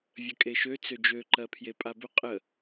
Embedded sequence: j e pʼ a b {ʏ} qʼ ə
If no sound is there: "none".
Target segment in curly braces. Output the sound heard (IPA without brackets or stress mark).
ʏ